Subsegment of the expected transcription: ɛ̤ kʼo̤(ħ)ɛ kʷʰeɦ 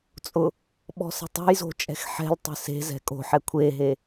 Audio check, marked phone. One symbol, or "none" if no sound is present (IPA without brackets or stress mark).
ħ